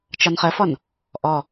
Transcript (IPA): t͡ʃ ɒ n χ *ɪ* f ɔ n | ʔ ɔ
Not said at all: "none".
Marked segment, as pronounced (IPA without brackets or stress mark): ə